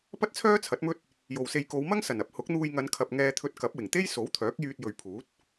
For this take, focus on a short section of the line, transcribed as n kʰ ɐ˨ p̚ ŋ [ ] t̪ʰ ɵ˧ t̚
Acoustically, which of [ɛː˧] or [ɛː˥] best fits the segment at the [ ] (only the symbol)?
ɛː˧